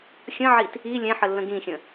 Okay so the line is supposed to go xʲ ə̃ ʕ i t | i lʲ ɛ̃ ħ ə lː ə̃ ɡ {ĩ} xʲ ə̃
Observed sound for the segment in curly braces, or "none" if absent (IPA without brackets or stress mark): ĩ